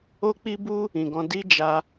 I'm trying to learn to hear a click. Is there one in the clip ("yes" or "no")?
no